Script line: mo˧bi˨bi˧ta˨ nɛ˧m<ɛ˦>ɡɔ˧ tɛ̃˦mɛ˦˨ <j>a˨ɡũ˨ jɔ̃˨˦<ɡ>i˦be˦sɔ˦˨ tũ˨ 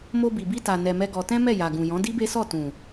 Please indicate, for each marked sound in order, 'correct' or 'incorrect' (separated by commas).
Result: correct, correct, incorrect